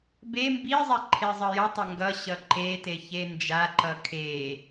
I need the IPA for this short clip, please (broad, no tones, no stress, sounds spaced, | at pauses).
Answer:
b e m b i zˤ ɛ ǃʰ e zˤ ʌ j ʌ tˤ ʌ ŋ ɡ ʌ ɕ ʌ ǃ e t e ç e n d͡ʒ a ǃ ʌ kʰ e